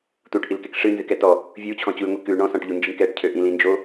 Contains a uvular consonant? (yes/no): no